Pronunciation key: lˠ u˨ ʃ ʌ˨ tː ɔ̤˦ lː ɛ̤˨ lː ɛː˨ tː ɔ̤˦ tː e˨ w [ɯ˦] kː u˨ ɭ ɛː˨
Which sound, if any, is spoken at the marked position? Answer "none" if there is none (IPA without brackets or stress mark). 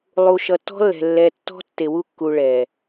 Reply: u˦